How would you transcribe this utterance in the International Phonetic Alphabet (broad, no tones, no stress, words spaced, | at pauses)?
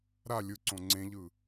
ɾa lʲɯǀõ ŋ͡ǀẽʎɯ